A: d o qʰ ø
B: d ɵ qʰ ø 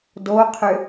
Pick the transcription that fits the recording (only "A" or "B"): A